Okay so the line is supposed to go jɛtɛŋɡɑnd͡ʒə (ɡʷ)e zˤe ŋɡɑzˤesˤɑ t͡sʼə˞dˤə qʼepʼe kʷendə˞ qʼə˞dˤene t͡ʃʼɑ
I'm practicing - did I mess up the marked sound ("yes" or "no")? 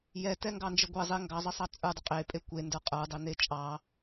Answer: no